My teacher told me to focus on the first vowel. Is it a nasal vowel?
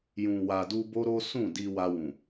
yes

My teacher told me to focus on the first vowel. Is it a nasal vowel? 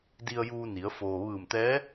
no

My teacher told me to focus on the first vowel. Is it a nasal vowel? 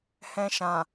yes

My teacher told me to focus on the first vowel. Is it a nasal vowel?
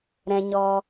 yes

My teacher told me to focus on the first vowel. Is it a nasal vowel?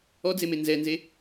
no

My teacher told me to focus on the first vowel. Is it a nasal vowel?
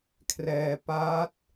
no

